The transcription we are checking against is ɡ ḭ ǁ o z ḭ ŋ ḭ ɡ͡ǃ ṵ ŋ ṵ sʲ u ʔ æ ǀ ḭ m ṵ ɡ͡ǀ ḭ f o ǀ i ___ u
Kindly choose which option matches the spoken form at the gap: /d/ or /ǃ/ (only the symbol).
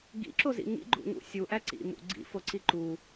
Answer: ǃ